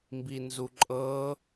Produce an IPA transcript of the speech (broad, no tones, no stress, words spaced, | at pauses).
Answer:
mbinzuǃʼɤ